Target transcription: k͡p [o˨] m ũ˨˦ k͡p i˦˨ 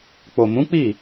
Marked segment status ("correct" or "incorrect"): correct